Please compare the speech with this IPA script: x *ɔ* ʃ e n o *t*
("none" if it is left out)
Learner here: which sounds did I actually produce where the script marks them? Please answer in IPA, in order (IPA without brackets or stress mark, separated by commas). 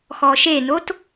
ɔ, t